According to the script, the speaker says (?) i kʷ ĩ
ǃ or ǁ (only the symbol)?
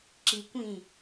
ǁ